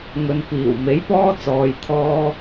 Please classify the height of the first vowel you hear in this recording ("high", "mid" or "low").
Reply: mid